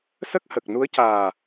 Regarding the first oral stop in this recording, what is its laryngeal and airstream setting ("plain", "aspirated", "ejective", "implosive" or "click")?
plain